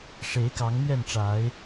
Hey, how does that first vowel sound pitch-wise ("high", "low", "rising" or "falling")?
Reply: rising